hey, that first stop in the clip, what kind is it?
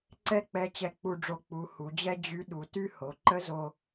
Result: click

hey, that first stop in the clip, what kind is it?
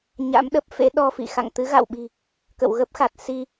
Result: implosive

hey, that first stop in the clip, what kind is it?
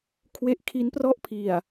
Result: aspirated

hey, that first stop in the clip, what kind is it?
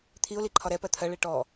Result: aspirated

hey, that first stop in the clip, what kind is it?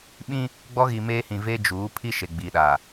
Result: implosive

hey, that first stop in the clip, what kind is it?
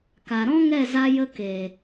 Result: plain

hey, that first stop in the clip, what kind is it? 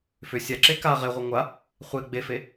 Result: click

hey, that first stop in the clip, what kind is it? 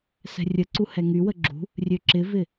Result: click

